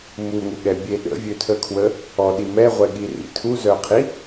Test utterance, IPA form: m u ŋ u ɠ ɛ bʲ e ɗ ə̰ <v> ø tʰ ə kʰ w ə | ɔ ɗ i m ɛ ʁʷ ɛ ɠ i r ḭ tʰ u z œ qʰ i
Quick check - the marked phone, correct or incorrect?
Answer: incorrect: vʲ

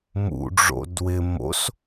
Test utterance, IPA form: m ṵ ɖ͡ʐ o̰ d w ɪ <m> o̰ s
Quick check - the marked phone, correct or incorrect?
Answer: correct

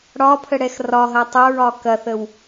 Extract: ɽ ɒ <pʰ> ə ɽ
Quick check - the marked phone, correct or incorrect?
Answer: correct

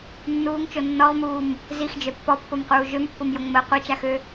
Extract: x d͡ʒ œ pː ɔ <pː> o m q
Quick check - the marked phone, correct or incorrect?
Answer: correct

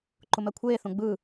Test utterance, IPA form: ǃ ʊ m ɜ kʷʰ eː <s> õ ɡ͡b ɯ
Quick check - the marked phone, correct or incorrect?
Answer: incorrect: θ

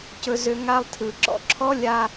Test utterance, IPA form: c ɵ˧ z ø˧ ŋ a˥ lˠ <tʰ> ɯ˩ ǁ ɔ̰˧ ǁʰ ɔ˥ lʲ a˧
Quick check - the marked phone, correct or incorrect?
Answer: correct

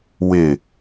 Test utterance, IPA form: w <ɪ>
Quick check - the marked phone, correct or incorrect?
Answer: correct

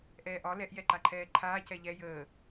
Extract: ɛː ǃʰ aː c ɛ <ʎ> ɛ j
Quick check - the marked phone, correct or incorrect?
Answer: correct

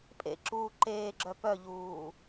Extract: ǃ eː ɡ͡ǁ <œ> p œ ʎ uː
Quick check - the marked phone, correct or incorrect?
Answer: correct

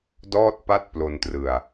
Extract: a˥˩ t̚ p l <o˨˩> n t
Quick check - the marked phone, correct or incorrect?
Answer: incorrect: o˧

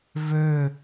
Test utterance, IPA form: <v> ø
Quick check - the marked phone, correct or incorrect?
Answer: correct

